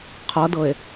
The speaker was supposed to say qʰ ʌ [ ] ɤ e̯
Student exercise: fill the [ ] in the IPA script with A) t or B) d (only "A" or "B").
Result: B